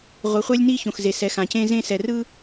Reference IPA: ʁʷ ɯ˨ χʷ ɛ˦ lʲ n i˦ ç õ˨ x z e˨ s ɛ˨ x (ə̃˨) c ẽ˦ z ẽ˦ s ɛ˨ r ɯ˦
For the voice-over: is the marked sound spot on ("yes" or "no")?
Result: no